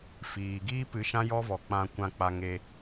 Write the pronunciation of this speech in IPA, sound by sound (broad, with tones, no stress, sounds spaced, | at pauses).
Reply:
f iː˨ ɡ iː˦ p ɨ˨˦ ʃ ã˦ j ɔ˦ v ɔ˨ k͡p ã˧ kʷ ã˧ k͡p a˧ ŋ e˧